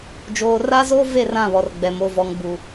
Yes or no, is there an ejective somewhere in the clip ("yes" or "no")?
no